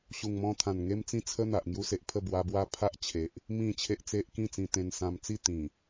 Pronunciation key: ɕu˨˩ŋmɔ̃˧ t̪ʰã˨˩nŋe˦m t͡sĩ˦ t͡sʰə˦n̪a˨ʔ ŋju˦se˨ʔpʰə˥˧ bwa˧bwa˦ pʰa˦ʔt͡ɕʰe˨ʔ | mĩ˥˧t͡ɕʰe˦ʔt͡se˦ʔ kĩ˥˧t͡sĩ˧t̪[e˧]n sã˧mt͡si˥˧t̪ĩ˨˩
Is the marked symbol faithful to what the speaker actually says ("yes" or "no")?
no